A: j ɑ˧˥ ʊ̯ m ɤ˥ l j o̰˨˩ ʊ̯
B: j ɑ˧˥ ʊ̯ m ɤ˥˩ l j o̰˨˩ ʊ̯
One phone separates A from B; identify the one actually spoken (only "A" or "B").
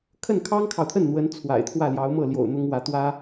B